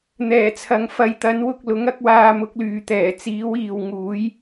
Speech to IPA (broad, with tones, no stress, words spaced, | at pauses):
n̪ɛː˨˩t͡sʰɐ˨ŋ fɐ˨˧jt̪ɐ˨˥nwʊ˧k̚ lʊ˨˥ŋɐ˨˥k̚ waː˧mʊ˨˥k̚lyː˨t̪ɛː˨˩ t͡siː˨˥wiː˨w ŋuː˨˥j